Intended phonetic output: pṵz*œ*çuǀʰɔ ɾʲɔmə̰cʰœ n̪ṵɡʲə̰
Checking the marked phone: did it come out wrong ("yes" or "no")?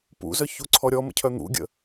no